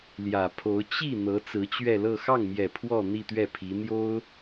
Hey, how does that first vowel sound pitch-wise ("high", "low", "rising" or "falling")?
low